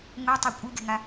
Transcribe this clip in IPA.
ŋʷɛtˤe kʷʼɯɡe̤ŋa

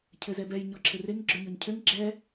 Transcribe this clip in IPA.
cʰɘzɛbɛj ɲɔǁʰɘreŋ ɡ͡ǁøɲɔɲcʰøŋ ɡ͡ǁɛ

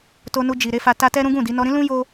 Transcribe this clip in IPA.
to˧nu˧d͡ʒi˨ ɾe˧fa˧ta˦ tɛ˦ɾũ˦ɡũ˦˨di˨˦ nɔ˧ɾĩ˦lũ˦ jo˦

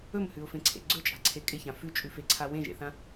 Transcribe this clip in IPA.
ɵmhʉʊ̯fẽǀʰḛ ɡ͡ǀɵt͡ʃʼa̤ǀʰe kʼɪçã fʉt͡ʃʼʉfeǀʰa wẽʒḛθã

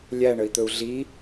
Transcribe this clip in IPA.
lʲæɳəi̯t̪ɵu̯ ɮi

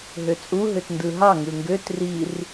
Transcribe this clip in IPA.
ɦøt͡sʼu ɦøtndɯɦɑ ŋɯŋɡøt rir

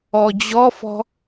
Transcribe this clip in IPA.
ɔd͡ʑɔfɔ̤

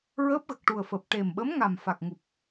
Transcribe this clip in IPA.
ɹəː˦˥p̚ɣə˨˩k̚ ʈu˨˩ə̯fəː˨˩p̚ ʈe˨˩mɓə˧˥mŋa˨˩m fa˨˩k̚ŋu˨˩p̚

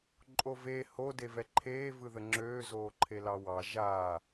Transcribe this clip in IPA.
ǃʼove ho devɛǃʰeː vɯðəŋ͡ǁøː zoːǃʰelɑwɑ ʒa

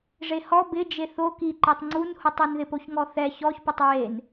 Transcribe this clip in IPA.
ʐehɔ bɪ d͡ʒeθo ki ǃetˤŋ͡ǀunhutˤun ðɪpoçŋɔθɛ çɔç pʊtˤɹen

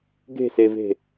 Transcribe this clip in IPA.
ɡe̤seve̤

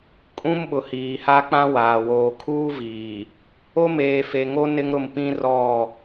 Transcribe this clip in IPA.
kʼũ˦mɓʊ˨ hiː˨ha˦k͡pã˦waː˨ woː˨kʰuː˦viː˨ | o˦meː˨fe˨ŋo˦ nɪ˦ŋɾʊ˦˨mpĩ˦ rɔ˦˨

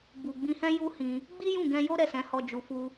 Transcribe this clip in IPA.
bu˨ ɡ͡bĩ˧hɛ̃˦ ju˦hĩ˧ | ɡ͡bi˦jũ˦˨ɡɛ̃˧ jo˦ ɾɛ˦˨sɛ̃˨˦hɔ˧ d͡ʒu˨fu˧

